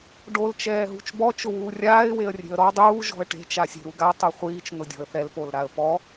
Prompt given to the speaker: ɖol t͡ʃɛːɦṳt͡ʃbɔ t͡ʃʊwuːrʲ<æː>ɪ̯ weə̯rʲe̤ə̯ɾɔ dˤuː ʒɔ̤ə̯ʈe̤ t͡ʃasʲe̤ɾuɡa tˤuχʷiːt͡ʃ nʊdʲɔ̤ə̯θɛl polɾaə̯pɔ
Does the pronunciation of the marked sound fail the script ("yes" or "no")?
yes